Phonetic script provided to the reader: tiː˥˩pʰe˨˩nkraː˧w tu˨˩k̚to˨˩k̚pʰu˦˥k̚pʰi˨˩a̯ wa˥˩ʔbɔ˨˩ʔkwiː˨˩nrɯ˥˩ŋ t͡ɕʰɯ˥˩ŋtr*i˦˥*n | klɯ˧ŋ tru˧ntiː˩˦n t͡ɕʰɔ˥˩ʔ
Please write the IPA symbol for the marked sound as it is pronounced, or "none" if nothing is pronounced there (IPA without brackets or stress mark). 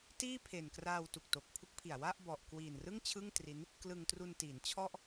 i˦˥